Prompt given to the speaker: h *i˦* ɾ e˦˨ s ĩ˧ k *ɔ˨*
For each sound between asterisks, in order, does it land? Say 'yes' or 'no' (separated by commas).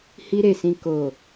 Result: yes, no